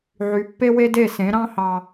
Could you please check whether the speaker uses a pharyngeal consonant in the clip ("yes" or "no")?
yes